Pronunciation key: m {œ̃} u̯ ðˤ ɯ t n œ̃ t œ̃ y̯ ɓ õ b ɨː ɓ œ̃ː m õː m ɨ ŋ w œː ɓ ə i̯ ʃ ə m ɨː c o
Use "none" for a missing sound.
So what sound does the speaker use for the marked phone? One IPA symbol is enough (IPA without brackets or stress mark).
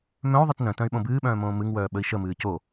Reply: œ̃